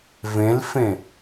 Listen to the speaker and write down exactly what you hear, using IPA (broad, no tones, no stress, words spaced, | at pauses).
vẽlfẽ